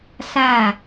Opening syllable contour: falling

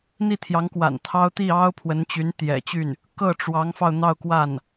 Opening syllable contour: falling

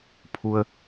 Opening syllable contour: low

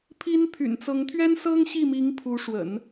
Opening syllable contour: high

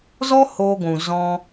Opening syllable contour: high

